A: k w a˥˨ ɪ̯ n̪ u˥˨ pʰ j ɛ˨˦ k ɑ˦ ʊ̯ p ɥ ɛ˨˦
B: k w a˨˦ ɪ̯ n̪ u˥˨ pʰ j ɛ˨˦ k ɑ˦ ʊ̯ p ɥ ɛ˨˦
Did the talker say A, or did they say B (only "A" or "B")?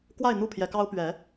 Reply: A